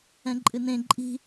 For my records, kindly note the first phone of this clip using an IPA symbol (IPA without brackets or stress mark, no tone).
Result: ɛ̃